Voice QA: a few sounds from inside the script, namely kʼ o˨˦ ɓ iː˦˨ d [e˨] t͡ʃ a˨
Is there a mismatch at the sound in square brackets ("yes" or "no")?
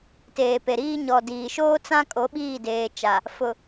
yes